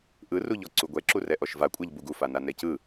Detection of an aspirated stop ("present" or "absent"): absent